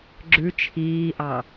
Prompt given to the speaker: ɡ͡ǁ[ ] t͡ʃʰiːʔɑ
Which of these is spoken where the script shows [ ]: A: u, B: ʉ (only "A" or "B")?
B